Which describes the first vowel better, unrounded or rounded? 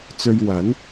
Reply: rounded